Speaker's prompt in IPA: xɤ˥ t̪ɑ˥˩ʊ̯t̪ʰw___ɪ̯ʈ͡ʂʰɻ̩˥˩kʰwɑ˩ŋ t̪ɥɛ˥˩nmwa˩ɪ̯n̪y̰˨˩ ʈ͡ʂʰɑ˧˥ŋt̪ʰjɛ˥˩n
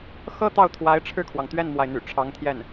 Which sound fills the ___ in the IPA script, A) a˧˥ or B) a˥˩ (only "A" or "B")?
A